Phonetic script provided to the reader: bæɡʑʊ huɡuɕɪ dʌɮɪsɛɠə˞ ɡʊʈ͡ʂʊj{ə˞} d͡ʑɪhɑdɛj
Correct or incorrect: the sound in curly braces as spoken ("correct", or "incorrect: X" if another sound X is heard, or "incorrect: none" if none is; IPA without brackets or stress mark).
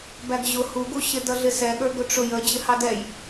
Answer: incorrect: ə